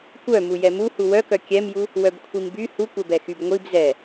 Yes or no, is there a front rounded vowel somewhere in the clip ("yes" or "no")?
yes